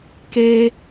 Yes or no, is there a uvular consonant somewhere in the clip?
no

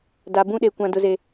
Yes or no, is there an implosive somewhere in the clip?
yes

